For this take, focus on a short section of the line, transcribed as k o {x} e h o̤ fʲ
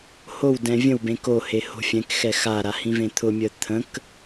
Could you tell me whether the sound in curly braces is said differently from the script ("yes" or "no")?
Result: yes